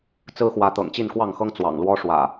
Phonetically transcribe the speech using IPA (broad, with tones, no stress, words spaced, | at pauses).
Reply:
t͡sɹ̩˦xwä˨˦ t̪ɤ̰˨˩ŋt͡ɕi˥˨nkwɑ˥˨ŋxɤ˦ŋ t͡swɑ̰˨˩ŋlwɔ˦ʂwä̰˨˩